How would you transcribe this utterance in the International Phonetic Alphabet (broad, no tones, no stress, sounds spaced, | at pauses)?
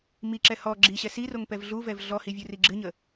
m i ǁ ɛ h ɔ ɡ͡ǁ i ɕ ɛ s i r o ŋ p ɛ v ɮ u v ɛ v ɮ ɔ h i vʲ u r i ɡ͡ǁ ɨ ɲ ə